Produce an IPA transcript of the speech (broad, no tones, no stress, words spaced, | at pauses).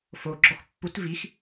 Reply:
fo ɡ͡ǁɔxpːut vix